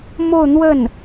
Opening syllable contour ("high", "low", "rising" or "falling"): falling